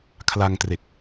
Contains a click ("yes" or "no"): no